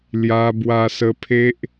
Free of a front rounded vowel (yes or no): yes